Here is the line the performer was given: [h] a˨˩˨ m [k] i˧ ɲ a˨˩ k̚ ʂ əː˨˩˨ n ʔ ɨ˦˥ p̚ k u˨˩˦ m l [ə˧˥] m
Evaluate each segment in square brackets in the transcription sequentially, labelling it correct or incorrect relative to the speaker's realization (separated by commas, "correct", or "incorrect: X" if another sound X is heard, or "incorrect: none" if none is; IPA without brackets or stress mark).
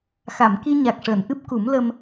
incorrect: x, correct, incorrect: ə˧